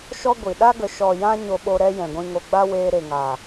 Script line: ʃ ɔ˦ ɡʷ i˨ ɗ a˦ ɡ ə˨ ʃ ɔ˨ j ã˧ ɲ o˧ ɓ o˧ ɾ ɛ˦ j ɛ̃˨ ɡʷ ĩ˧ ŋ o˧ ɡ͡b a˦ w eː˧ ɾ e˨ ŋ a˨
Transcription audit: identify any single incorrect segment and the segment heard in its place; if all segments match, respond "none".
none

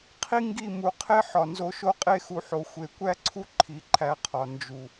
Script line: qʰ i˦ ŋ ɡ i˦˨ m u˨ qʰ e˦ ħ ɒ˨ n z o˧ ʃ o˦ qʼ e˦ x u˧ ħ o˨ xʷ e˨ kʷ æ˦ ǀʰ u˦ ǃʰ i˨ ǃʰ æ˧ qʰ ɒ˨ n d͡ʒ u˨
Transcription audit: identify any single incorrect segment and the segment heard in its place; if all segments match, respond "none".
none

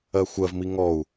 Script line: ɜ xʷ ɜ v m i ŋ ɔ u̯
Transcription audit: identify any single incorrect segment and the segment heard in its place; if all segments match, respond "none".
none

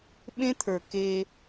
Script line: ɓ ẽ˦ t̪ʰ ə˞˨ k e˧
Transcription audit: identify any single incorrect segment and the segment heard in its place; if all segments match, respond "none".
none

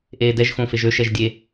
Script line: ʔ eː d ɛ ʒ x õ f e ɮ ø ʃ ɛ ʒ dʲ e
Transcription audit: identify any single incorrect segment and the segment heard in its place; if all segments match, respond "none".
ɮ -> ʒ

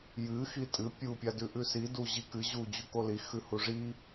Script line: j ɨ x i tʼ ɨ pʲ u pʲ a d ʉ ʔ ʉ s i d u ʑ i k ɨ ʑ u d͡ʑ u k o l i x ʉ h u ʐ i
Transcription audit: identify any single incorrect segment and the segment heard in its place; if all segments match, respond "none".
none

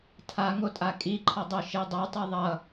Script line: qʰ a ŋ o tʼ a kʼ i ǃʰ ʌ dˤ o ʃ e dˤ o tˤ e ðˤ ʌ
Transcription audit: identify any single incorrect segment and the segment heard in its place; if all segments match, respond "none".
qʰ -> tʰ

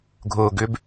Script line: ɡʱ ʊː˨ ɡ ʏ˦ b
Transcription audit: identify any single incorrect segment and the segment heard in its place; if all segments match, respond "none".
none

